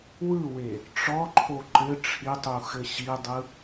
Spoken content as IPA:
w ɯ w e | ʈ͡ʂ ɔ ǃʰ o ǃ ɘ ʈ͡ʂʰ i tˤ u x ɘ ɕ i dˤ ɯ

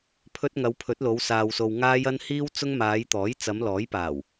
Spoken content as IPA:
pʰ ɵ˧ t̚ ŋ ɐ˨˧ w pʰ ɵ˨˥ t̚ l o˨˧ w s aː˨ w s o˨ w ŋ aː˧ j ɐ˧ n h iː˧ w t͡s ʊ˧ ŋ m aː˨˧ j t̪ ɔː˨˥ j t͡s ɐ˨˧ m l ɔː˨˥ j p aː˨˩ w

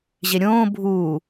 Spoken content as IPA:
ʑ e ɾʲ õː bʱ uː

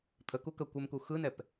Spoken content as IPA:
t̪ʰ ə k u k ə kʷ ɛ m k u x ɯ n ɛ p

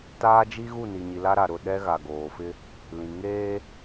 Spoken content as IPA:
t aː˦ d͡ʒ i˦ ɣ u˦˨ n i˨ ɲ i˨ l a˦ ɾ a˨ ɾ ʊ˦˨ ɗ ɛ˦ ɣ a˨ ɡ oː˨ f ɪ˦ | l ĩ˨ ŋ eː˦

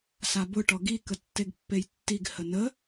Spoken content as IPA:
s a b ʊ ʈ ɔ ɡ i k ə tː e ɡ pː e j tː i ɡ h ə n ə

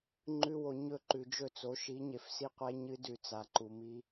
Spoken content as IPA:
ŋ͡ǃ ʉ˧ w o˨ ɲ ɵ˦˨ ǃ ʉ˨ d͡ʒ ɵ˦˨ t͡s o˨˦ ʃ i˨˦ ɲ e˨ f s i˦ qʷ e˦ ɲ ɨ˦ d ʉ˨ t͡s a˨ ǃ u˨ m i˧

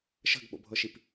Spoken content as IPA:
ʃ ə̤ ɡ ɓ o̰ bʱ ɤ ʃ i p

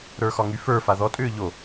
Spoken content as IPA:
ɾ ə˞ x ɒ ŋ y f ə˞ f a ð ɔ tʼ ʏː ʎ o

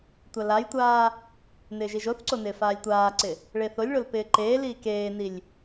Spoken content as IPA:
tʷ a l a j tʷ aː | n ɪː ʒ i ʒ o θ ǀ o n ɪː f aː lʲ tʷ aː ǀ ɪ | ɭ e θ o lʲ ɭ o l p ɪː ǃ eː l iː k eː n i lʲ

